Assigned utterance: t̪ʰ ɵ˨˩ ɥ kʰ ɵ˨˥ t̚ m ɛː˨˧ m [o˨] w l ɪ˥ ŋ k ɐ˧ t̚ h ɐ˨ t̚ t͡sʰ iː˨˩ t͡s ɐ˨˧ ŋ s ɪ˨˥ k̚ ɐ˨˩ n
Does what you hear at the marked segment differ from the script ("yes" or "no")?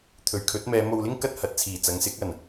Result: no